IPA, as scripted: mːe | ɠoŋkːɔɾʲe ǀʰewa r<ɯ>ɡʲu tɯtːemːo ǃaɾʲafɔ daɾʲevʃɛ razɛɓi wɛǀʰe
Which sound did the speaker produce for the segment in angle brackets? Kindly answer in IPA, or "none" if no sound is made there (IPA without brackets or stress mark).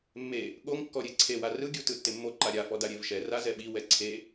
ɯ